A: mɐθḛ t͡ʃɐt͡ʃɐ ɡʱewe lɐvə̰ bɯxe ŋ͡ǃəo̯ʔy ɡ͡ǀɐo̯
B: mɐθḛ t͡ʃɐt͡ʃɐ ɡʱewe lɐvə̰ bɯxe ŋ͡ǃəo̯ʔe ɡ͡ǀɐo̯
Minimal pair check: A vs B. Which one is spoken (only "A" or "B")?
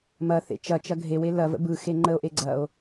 B